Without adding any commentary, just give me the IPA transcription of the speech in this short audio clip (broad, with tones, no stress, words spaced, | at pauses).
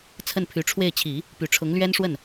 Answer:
t͡sʰə˥˩npʰy˧˥ʈ͡ʂʰwe˥˩ɪ̯t͡ɕʰi˨˩˦ | py˨˩ʈ͡ʂʰʊ˧˥ŋlɥɛ˥nʂwə˥˩n